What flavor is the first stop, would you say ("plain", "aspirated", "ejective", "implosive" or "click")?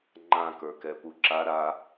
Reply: click